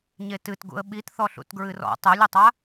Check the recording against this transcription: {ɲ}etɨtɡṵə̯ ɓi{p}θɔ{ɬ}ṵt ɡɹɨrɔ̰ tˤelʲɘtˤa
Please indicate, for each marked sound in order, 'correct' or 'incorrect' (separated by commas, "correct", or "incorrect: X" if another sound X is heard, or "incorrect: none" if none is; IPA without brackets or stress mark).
correct, incorrect: t, correct